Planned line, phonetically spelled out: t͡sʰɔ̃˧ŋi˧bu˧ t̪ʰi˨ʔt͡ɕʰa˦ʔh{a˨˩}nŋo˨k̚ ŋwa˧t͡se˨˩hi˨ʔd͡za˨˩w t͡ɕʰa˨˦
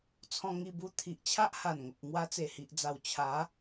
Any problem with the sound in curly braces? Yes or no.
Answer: no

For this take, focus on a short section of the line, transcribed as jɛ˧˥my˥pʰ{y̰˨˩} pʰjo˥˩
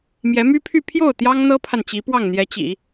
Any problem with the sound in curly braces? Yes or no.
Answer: yes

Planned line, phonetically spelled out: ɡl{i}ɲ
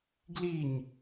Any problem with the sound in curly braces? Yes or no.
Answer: no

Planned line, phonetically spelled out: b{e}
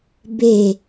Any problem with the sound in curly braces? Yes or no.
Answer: no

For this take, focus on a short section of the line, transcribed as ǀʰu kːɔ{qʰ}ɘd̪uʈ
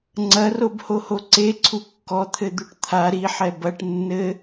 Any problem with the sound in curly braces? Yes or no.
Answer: yes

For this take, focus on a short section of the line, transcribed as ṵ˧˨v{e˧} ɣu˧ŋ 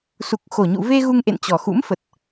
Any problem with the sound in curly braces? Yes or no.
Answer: no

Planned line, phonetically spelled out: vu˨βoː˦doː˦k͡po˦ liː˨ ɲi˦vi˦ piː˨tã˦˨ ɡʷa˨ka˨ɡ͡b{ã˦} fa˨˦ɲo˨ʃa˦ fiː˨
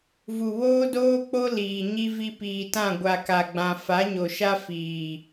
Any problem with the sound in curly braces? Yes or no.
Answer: yes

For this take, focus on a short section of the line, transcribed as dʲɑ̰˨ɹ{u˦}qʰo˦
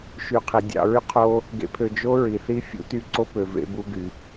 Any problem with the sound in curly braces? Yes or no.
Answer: yes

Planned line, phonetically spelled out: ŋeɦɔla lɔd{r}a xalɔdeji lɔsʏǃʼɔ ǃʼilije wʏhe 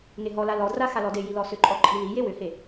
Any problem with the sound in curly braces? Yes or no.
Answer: no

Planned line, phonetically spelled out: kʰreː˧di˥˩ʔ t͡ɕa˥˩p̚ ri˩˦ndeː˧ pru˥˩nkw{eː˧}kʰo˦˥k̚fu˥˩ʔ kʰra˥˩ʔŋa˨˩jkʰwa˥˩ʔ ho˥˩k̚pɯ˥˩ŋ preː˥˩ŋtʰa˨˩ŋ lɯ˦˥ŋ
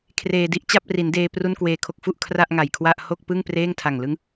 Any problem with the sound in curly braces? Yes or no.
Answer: no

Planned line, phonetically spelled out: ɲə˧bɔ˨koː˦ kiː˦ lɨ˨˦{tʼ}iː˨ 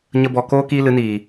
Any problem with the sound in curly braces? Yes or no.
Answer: yes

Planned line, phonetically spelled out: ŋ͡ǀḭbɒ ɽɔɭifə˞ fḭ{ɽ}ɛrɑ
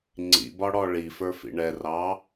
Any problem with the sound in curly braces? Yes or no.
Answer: yes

